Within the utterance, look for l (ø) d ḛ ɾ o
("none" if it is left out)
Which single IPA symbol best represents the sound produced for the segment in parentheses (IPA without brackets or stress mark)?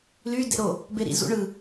y